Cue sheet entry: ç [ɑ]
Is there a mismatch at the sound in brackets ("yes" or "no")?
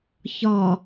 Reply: yes